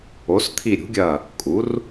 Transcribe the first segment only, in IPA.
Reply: o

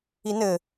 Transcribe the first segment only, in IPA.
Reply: i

